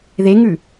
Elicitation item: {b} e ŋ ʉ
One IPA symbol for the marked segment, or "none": ð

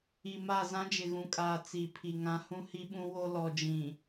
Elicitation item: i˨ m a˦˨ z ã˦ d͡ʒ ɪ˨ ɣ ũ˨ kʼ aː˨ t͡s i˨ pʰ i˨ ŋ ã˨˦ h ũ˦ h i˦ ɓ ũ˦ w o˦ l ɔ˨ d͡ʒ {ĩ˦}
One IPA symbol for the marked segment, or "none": ĩ˨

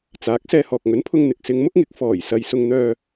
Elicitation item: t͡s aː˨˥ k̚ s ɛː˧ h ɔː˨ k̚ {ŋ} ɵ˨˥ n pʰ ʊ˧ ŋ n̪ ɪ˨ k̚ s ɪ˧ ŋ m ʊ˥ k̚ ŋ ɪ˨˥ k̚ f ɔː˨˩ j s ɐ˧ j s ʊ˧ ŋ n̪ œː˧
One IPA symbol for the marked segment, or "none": ŋ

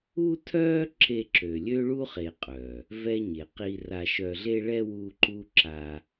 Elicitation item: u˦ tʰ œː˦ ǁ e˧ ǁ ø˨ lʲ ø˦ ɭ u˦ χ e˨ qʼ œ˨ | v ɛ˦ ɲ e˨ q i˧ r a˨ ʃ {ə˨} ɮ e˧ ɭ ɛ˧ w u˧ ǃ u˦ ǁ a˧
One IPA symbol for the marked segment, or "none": œ˨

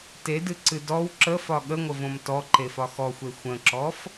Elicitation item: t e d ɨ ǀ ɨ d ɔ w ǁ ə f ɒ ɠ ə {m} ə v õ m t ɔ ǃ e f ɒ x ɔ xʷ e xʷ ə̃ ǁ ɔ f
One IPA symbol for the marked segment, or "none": ŋʷ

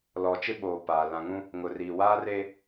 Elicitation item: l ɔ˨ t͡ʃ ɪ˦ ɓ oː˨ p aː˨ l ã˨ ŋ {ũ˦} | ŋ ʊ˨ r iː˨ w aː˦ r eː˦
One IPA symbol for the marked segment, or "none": ũ˦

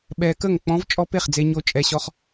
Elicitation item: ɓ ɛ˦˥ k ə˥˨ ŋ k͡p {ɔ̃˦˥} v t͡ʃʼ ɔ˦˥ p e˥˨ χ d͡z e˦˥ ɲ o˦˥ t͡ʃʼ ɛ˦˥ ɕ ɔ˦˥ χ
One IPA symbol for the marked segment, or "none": ɔ̃˦˥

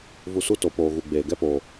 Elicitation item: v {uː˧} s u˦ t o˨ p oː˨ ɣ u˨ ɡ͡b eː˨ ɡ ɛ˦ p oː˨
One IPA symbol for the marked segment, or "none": u˧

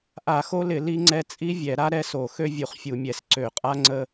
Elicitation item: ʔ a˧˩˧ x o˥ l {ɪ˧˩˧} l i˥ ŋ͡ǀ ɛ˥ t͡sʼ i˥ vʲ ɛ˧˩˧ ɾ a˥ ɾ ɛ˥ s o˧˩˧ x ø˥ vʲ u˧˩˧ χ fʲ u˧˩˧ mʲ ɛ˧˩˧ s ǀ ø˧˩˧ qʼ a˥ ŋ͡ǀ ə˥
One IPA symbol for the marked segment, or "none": ɪ˧˩˧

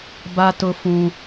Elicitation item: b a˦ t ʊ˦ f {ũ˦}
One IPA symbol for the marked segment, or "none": ũ˦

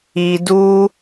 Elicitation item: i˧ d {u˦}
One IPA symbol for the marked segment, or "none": u˦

